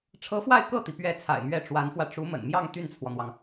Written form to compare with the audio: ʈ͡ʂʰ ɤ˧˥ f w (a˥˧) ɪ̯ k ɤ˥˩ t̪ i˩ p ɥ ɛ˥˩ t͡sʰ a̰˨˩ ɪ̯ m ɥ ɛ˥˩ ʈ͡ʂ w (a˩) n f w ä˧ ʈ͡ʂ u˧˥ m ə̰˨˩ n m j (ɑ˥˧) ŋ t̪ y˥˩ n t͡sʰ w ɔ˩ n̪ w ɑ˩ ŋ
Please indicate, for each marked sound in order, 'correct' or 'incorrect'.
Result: correct, incorrect: a˧˥, correct

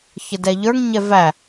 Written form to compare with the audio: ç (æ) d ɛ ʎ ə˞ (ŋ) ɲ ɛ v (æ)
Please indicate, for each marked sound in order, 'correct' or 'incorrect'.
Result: incorrect: ə, correct, correct

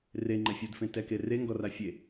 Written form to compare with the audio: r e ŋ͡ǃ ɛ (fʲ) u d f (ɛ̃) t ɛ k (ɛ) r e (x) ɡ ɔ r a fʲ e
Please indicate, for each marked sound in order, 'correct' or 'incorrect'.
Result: correct, incorrect: ẽ, incorrect: e, incorrect: ŋ

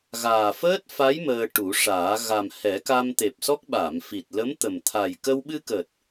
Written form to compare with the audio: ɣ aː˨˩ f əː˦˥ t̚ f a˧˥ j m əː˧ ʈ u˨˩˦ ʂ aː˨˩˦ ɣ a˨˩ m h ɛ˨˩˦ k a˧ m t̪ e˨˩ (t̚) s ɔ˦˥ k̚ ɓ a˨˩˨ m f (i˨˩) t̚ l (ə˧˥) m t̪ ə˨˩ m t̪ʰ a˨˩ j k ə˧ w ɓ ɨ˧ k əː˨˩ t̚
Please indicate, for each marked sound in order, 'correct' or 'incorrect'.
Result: incorrect: p̚, correct, correct

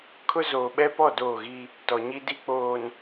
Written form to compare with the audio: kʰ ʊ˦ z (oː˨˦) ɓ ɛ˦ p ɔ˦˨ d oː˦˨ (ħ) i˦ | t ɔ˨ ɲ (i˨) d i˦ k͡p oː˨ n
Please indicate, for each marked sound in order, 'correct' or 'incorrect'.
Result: incorrect: oː˨, incorrect: ɣ, incorrect: i˦

